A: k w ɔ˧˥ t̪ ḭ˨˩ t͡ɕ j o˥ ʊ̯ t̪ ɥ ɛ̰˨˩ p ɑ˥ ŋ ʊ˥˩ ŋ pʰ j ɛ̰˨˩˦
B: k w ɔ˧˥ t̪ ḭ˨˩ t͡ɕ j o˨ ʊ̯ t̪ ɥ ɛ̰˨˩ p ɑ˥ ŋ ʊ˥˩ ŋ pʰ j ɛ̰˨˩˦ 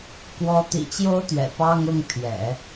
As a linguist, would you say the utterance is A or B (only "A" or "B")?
A